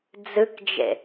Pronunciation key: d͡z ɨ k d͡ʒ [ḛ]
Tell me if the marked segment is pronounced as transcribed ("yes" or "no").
yes